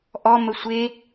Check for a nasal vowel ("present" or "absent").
absent